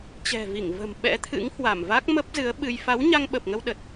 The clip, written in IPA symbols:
t͡ɕɛ̤˨˩vi˧˩ŋ və̤˨˩m ɓɛ̰˧˥ t̪ʰɨ̰˧˥ŋhwa˧˩m va˦˥k̚mə˦˥p̚zɨ˨˦ə̯ɓɨ˧j fa˨˦wɲa˧ŋɓə˨˩p̚ŋə˧w ɗə˨˩t̚

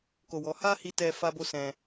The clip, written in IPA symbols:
ko˧wɔ˧ ha˦hi˧tɛ˧ fa˦bo˦sɛ̃˧

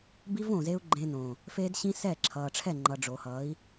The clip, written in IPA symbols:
bi˦v õː˨zeː˦u̯ɡ͡ǃẽː˧nõː˨ | feː˦dɕĩ˦ sɛ˦˨ǁʰʌː˨ʈ͡ʂʰɛ˦˨ŋ͡ǃʌ˨ ɖ͡ʐo˨hʌː˨˦i̯

